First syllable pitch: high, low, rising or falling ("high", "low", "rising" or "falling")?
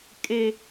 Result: high